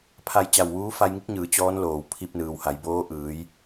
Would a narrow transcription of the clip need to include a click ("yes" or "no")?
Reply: no